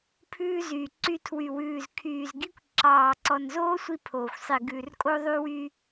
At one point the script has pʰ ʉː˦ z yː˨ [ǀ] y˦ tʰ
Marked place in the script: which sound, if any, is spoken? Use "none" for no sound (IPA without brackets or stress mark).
ǀ